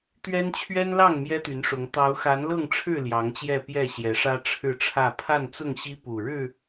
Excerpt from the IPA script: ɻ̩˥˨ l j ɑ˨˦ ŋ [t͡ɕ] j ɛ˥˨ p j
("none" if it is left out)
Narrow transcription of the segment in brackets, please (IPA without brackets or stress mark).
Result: t͡ɕ